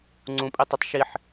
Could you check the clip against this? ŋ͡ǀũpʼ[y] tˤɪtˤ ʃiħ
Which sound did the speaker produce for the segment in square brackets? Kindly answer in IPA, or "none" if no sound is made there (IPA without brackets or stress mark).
i